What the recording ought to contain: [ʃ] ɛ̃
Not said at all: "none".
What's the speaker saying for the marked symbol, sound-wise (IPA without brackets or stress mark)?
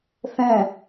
θ